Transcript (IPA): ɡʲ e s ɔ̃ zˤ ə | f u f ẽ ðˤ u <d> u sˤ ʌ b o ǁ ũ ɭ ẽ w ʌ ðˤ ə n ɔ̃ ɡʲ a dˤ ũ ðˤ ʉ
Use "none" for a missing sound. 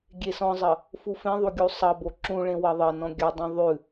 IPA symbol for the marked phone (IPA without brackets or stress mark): ɡʲ